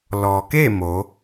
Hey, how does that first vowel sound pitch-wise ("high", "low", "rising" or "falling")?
low